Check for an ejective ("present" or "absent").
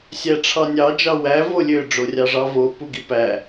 absent